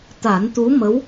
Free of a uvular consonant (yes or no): yes